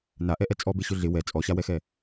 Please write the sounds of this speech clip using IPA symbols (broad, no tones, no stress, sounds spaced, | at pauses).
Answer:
n a ʔ ɛ ʔ ɛ t͡sʼ ɔ b e ɕ ʊ ɮ ɪ w ɛ t͡sʼ ɔ ɕ a w ɛ x ɛ